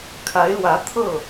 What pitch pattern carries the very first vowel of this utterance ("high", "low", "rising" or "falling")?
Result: rising